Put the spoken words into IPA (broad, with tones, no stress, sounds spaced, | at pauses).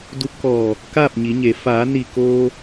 d u˧ p̚ k ɔː˧˩ | k aː˥˨ p̚ ɲ i˩˧ ɲ e˩˧ f aː˩˧ n i˧˩ k oː˧